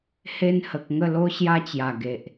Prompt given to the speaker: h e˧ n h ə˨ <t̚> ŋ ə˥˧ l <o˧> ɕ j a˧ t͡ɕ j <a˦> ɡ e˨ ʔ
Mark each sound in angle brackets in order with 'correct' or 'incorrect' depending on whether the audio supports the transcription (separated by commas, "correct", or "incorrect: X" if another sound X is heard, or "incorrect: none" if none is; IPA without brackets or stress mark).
incorrect: k̚, incorrect: o˦, incorrect: a˨˩